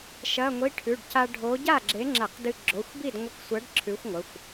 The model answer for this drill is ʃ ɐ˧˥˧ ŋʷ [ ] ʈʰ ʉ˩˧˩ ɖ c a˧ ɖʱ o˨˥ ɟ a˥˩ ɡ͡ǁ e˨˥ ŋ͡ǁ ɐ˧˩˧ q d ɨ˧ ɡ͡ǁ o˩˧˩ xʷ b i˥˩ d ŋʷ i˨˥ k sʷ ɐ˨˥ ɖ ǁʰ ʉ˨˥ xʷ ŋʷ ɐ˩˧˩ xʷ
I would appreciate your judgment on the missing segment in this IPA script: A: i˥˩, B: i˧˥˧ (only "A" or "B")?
B